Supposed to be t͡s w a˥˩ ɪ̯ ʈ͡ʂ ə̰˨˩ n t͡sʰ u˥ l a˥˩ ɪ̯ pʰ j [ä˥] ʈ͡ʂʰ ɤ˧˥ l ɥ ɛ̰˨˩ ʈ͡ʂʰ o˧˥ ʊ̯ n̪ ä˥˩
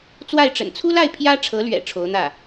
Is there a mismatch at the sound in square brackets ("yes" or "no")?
no